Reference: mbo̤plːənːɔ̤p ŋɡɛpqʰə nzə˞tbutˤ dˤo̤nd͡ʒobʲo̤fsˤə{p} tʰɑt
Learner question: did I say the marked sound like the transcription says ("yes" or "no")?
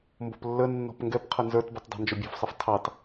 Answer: no